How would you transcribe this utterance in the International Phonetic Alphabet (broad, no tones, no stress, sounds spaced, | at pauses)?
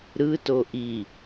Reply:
ɾ ɯ t o ʔ i